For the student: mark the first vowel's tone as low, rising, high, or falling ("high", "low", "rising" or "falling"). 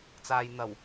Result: low